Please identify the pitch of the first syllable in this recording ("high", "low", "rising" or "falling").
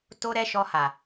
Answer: high